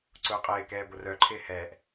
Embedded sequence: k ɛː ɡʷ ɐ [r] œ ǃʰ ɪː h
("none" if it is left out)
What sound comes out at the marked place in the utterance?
r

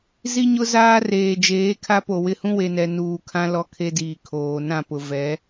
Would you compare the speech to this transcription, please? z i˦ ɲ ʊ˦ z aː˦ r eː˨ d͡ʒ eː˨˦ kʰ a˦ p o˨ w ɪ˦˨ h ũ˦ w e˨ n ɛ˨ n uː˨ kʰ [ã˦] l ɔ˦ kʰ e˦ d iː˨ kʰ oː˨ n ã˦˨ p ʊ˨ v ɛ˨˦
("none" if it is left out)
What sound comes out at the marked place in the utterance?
ã˦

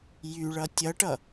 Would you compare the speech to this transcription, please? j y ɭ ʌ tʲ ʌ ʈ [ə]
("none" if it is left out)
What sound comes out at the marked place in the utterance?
ʌ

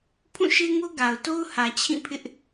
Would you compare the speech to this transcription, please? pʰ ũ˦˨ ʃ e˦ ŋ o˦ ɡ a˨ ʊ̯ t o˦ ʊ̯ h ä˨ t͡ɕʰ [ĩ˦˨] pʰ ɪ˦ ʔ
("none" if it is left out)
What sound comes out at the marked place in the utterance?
ĩ˦˨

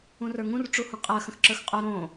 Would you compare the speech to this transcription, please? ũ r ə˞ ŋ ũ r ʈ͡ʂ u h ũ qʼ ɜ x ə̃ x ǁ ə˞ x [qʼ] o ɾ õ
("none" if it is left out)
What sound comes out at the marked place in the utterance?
qʼ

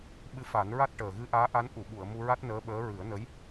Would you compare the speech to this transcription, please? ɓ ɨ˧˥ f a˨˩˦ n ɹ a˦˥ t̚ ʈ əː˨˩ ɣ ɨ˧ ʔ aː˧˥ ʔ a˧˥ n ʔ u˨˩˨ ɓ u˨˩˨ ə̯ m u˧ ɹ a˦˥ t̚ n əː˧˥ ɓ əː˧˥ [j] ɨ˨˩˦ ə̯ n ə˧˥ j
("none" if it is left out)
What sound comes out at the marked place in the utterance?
ɹ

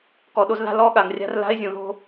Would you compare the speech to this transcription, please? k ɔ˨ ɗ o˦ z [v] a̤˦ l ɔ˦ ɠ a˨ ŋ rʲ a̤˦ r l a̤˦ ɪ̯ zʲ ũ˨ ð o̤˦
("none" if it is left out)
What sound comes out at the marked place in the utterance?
ð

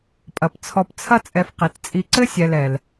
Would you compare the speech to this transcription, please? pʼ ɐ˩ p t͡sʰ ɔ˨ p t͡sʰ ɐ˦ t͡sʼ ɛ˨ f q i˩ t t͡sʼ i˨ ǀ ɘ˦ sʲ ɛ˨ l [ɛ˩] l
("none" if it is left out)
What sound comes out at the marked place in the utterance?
ɛ˩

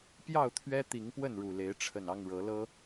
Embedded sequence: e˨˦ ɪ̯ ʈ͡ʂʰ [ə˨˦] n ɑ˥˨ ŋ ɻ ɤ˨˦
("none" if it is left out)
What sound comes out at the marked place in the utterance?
ə˨˩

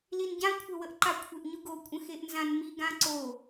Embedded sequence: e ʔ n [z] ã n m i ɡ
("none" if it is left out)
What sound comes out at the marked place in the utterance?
z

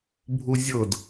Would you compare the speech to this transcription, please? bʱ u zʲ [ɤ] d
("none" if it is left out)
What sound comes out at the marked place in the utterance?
ɤ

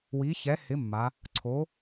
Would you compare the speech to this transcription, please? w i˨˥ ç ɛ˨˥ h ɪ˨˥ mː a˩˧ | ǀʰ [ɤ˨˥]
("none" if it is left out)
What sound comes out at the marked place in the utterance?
o˨˥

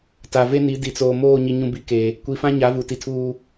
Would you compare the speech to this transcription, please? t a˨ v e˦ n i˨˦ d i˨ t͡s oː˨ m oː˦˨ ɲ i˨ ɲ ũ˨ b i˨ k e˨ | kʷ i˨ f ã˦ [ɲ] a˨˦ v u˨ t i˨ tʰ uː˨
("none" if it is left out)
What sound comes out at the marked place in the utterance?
ɲ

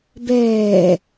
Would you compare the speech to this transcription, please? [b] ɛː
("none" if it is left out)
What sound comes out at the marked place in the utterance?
b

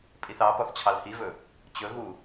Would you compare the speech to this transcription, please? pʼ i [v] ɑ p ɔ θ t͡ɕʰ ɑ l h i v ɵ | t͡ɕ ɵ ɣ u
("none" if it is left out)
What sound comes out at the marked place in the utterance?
θ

